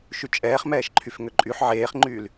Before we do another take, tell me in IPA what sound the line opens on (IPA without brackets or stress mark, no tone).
ʃ